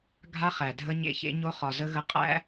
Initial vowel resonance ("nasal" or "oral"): oral